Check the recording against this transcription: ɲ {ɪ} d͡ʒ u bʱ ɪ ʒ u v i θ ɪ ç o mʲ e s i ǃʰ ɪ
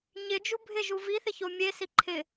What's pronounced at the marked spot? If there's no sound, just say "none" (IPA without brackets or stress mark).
ɪ